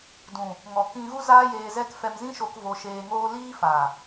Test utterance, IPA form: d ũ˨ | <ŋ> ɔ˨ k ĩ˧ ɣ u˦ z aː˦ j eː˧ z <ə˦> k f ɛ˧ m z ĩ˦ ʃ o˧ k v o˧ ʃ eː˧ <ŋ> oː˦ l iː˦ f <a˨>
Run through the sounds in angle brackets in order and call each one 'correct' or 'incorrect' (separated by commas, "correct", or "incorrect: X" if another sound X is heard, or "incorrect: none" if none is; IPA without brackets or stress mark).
correct, incorrect: ɛ˦, correct, correct